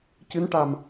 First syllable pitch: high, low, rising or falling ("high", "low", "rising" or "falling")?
rising